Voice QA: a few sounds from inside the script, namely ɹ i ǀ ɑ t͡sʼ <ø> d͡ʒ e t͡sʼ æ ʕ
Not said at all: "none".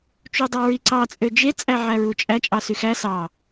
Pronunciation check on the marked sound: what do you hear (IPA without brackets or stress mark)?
ø